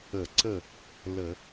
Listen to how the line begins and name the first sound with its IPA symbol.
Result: ə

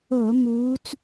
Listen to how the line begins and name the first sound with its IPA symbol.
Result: o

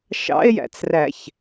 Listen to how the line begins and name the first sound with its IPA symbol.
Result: ʃ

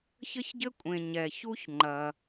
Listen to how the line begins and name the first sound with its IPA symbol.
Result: ç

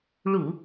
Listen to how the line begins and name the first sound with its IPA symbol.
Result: ɭ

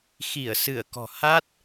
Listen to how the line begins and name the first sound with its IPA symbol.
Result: x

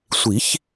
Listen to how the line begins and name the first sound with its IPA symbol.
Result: sʷ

